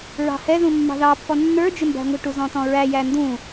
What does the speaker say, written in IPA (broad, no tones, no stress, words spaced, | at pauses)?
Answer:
ɹɑ̤hɛðũ mːɑ̤ðɑpːɔ nːə˞d͡ʒɪ mbæ̤ŋʷə̤ʈu zɔ̃tɔ̃ɹæ jændũ